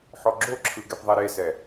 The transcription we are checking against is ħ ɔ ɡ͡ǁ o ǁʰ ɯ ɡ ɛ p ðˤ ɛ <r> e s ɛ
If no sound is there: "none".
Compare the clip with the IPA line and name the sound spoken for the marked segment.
ɾ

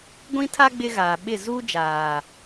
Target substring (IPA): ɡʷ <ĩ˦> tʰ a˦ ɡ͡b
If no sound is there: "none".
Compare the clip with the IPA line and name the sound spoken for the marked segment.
ĩ˦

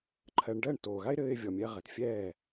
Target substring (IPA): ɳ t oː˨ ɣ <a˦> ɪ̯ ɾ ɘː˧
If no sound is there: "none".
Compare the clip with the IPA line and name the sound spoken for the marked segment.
a˦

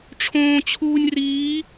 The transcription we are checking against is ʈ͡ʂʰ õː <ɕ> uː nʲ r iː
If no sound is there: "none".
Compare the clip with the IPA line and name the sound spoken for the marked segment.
t͡ɕʰ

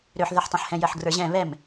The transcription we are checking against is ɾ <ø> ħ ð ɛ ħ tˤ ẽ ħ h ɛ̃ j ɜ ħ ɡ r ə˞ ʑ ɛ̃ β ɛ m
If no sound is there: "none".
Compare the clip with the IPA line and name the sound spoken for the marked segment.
ø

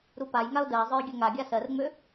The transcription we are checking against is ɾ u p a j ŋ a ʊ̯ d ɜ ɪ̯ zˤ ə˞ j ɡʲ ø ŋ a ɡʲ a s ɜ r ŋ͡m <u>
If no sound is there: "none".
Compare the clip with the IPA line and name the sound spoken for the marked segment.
ø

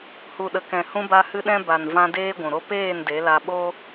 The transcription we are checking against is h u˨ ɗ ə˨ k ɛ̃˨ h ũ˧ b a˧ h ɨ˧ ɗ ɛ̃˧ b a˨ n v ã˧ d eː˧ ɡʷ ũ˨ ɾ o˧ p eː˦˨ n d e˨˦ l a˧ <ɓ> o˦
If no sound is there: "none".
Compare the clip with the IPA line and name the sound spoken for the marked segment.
ɓ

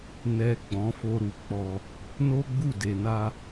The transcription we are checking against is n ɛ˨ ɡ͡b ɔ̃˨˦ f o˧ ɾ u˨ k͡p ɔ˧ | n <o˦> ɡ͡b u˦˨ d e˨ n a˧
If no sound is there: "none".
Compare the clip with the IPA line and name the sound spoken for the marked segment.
o˦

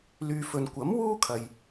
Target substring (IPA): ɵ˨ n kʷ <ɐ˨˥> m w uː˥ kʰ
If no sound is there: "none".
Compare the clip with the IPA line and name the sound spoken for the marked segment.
ɐ˨˥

